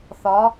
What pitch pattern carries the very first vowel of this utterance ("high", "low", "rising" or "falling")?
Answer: rising